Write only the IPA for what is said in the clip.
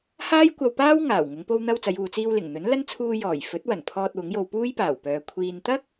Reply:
h aː˥ j kʷ ɐ˧ w p aː˥ w ŋ aː˨˩ w ŋ ʊ˨˧ ŋ p o˧ w n̪ ɐ˧ w t͡s ɐ˨˧ j uː˨ t͡s iː˧ w l ɪ˨˩ ŋ n̪ ɵ˨˥ n l ɐ˥ n t͡sʰ uː˧ j ɔː˨˩ j f ɵ˨˥ t̚ w ɐ˨˩ n pʰ ɔː˧ t̚ w ʊ˨˥ ŋ j o˧ w p uː˥ j p aː˨˩ w p œː˨ kʷʰ iː˨ n t̪ ɐ˥ k̚

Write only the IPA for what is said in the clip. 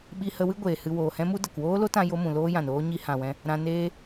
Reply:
ɓ i˧ h ə˧ w ɨ˦ ɡʷ eː˨ h ɨ˧ w oː˨ h ɛ̃˦ m u˦ d ə˨ k w oː˦ l o˦ t ã˧ j o˧ m ũ˨ l oː˦ j ã˨ n oː˦ ɲ i˧ h ã˨ w ɛ̃˧ | ɾ ã˧ n eː˦

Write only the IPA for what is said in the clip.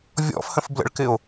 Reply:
vʲ ɔ̰ f h ə̃ f b l ə̰ ɭ k ɪ o̯

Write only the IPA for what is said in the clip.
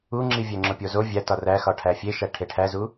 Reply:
u ŋ͡ǁ i vʲ æ ŋ͡ǁ o pʲ o z o vʲ æ t ɒ r æ x ɒ ʈʰ æ fʲ e ʃ æ ʈʰ e ʈʰ æ z u

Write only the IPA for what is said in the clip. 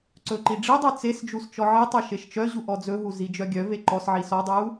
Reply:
ǀ ɵ ǃ i ɖ͡ʐ i dˤ œ t͡s e s d͡ʒ u s t͡ʃ ɔ ʕ i tˤ ɵ ʃ e ʃ t͡ʃ œ ʑ u ʔ ɔ d͡z ɵ ɦ u z i d͡ʒ œ ɡʲ œ v e ǃ ɔ s ʕ i s ɔ dˤ u

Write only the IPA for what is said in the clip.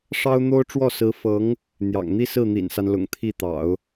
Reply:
ʂ ɑ˥ ʊ̯ n̪ o˥ ʊ̯ ʈ͡ʂ w ɔ˥˩ s ɹ̩˧˥ f ɤ˧˥ ŋ | n̪ j ɑ̰˨˩ ŋ n̪ i˥ s ɹ̩˥˩ n̪ ḭ˨˩ n s a˦ n l ʊ̰˨˩ ŋ t̪ʰ i˥˩ t̪ ɑ̰˨˩˦ ʊ̯

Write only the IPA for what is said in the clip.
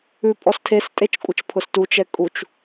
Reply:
ʉ pʼ ɔ s tʰ e s tʼ e t͡ʃ kʷʼ ə t͡ʃ pʰ ʊ s t u t͡ʃ ɛ kʼ u t͡ʃ

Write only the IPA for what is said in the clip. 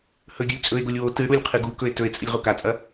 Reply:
h ɵ ɡʲ ɵ lʲ t͡sʼ ɵ e̯ ɡ o lʲ w o t ɨ ɽ u lʲ qʰ ɨ ɡ u k ɵ e̯ t ɵ e̯ t͡sʼ ɨ lʲ ʁ o k a t͡sʼ ɐ

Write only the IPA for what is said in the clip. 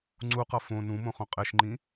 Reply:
ŋ͡ǀ u q ʌ f õ n ũ m õ χ õ qʼ e ʃ ŋ͡ǃ ĩ

